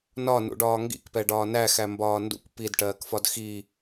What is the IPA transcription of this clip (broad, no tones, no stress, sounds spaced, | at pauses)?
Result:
n ɒ n ṵ ɖ ɒː ŋ ɡ ḭ k p ɛ ɖ ɒː n æ x æ m b ɒː n d ṵ kʷ p i d ʈ ɜː k f ɒ d x i